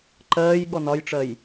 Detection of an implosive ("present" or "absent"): present